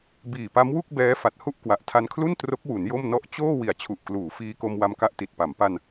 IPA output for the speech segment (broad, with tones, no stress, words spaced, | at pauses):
biː˨˩pa˦˥mwu˥˩k̚ bɛː˦˥ fa˨˩t̚hu˥˩ʔ kwa˨˩ʔtʰa˧nkʰlu˥˩n tro˦˥k̚wu˩˦n jo˥˩mnɔ˥˩ʔ t͡ɕoː˥˩ wi˨˩a̯t͡ɕʰu˨˩ʔ kluː˩˦fiː˧ko˧m wa˧mka˦˥ʔti˨˩t̚pa˩˦m pa˧n